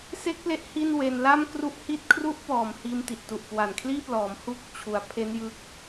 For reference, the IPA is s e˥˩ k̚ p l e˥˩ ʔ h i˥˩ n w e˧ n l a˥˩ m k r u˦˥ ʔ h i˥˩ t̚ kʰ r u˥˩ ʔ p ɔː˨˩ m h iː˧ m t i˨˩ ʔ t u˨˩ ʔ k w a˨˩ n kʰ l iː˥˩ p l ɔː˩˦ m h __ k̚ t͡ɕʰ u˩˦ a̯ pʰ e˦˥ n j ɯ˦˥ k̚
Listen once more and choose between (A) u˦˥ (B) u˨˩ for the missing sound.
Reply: A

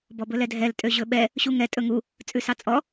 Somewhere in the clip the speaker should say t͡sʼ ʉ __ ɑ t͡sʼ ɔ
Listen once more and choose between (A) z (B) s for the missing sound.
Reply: B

